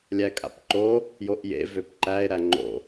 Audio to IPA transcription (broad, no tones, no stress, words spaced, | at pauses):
lʲækʼa̰pǃo | joʔjḛ vøpǃæe̯ ɾæŋ͡ǃo̰